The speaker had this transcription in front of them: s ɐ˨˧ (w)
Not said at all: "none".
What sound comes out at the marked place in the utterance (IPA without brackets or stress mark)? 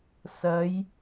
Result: j